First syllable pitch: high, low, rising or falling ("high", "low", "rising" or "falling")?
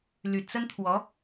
low